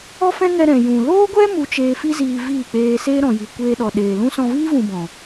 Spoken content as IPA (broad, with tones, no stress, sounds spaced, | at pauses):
ɔ˦ f ɛ̃˦ ŋ ɛ˧ ɾ ɛ̃˨ j ũ˨ l oː˦ ɡʷ ɛ˦ m u˧ t͡ʃ eː˧ f i˦ z iː˧ v iː˦˨ k͡p eː˧ s eː˦ ɾ ɔ̃˨ j i˨ kʷ eː˧ ɗ ɔ˨ ɗ eː˨ l ũ˦ s ɔ̃˧ v iː˦ v ũ˧ b ɔ̃˨